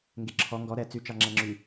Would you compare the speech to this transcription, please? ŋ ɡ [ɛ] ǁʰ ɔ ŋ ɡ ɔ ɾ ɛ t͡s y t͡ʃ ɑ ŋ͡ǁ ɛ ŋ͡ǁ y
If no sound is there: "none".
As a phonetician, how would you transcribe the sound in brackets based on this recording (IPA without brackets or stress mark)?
e